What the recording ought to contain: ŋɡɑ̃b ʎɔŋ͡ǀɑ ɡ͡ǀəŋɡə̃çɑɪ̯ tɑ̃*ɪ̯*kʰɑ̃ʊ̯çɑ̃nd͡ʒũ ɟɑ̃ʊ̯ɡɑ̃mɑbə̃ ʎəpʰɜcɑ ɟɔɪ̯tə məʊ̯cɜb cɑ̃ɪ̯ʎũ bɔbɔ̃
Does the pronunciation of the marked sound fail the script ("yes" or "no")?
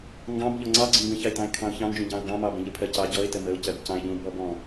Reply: no